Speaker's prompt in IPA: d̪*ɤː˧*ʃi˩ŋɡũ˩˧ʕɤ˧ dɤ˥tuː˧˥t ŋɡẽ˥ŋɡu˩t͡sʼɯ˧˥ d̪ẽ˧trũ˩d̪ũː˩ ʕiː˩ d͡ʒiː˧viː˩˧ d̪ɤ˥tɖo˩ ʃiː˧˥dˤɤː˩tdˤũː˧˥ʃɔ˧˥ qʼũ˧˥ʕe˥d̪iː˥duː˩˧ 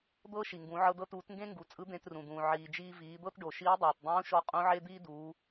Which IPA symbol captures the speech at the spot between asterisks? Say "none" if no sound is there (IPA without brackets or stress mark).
ɤː˥